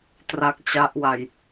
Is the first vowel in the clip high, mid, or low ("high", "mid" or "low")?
low